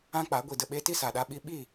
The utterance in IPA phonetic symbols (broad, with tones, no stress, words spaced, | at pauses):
ã˦k͡pa˨˦ ɡʷi˨də˨ɓe˧ ti˦sa˨ɗa˧ɓi˧ ɓi˦˨